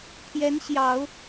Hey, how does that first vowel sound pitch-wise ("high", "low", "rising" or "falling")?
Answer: rising